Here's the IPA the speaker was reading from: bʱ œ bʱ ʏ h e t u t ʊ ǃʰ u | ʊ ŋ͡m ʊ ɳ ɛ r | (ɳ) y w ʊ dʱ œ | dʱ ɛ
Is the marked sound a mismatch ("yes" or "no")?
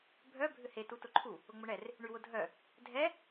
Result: no